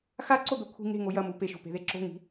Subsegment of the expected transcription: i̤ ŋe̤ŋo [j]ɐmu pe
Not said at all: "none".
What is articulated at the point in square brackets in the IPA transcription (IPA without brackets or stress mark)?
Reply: j